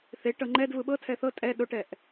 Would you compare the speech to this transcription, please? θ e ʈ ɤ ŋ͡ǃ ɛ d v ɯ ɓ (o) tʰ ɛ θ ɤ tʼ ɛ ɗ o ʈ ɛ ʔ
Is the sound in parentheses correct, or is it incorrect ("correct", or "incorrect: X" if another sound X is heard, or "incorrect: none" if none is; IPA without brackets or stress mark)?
incorrect: ɤ